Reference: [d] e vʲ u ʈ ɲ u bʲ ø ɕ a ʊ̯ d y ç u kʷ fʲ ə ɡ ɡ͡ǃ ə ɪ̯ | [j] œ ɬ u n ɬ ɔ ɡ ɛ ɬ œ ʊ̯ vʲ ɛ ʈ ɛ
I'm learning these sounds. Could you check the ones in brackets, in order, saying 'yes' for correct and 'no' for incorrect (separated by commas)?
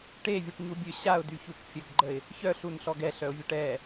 no, no